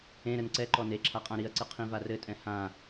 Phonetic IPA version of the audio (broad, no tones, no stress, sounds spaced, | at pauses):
ẽ ɾ ɘ n ǀ ɛ ǃ ɔ n e ǁʰ a qʼ ã ɾ i ɐ̯ ǀ ɨ qʰ ĩ v a r ɘ tʼ ɛ̃ h ã